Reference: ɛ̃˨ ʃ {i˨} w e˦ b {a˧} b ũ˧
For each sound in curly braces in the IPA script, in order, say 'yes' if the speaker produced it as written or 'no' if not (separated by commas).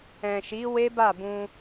no, no